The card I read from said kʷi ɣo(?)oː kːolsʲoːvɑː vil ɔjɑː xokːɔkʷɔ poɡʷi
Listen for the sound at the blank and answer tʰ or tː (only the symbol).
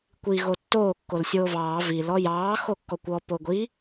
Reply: tː